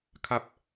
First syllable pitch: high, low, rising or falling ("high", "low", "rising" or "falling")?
low